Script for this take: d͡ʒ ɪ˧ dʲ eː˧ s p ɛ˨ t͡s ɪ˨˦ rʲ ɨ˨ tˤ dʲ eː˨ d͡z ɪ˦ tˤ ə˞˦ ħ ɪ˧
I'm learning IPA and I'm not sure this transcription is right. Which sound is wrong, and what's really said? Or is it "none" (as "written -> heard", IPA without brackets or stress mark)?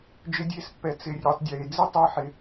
p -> pː